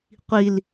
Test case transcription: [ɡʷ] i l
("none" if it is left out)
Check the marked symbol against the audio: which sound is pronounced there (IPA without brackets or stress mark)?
qʷ